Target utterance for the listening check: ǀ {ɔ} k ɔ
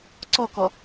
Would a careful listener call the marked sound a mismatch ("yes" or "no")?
no